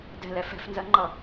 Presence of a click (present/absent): present